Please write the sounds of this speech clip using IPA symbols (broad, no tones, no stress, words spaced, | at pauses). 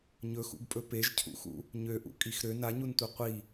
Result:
ɲɵxṵɡpʼɵ peʒcʰṵxṵ | ɲøʔṵkʼix ɾø naɲuntʷɛ qʷi